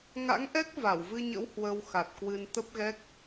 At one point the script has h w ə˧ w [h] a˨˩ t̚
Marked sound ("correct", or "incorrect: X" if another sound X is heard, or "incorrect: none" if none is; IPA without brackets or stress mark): incorrect: x